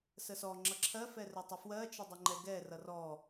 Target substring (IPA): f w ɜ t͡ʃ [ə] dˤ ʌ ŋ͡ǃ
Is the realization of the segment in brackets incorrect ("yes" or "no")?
no